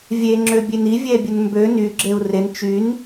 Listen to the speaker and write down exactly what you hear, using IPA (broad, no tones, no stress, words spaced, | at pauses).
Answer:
vʲe ŋ͡ǁøbʲeni vʲɛbʲənmbø ny ɡ͡ǁeu̯ren t͡ʃyn